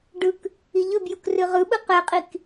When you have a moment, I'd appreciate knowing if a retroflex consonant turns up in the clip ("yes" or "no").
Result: yes